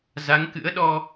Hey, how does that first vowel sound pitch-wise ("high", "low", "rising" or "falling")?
rising